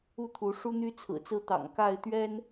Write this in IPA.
u˥˨ t̪ʰ u˨˦ ʂ u˦ n̪ y˦ t͡sʰ ɹ̩˨˩ t͡s ɹ̩˦ t̪ ɑ̰˨˩ ŋ k a˥˨ ɪ̯ t̪ ɥ ɛ˦ n

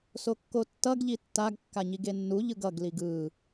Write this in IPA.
s o kː o tː ʌ ɡ ʎ i tː a ɡ kː a ɲ i ɡ e nː u ʎ ɯ ɡ ʌ ɡ l i ɡ ɯ

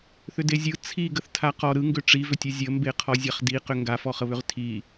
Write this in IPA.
θ ʏ d e zʲ ɯ t͡sʰ i ɡ ə θ tʰ a q ɔ ɾ ɯ ŋ ɡ ʏ ʈ͡ʂ i v ʏ tʲ ɯ zʲ ə m b e qʰ ɔ zʲ a χ d i q ʏ ŋ ɡ a f ɔ χ ə β ʏ ʁ tʰ i

